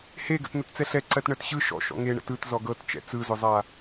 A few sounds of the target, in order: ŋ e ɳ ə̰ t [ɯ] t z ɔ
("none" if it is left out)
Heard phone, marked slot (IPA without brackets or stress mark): ɯ